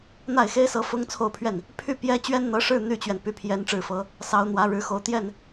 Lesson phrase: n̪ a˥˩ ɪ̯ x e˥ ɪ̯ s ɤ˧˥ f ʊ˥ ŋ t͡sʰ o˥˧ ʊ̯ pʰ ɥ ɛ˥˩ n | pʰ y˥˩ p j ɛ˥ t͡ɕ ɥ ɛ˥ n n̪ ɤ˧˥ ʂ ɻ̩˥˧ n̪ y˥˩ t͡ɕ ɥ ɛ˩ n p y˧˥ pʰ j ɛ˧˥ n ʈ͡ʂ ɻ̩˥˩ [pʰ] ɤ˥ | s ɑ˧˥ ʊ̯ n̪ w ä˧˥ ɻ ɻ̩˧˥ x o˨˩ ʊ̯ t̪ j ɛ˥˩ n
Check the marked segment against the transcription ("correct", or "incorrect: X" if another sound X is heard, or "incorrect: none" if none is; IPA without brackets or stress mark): incorrect: f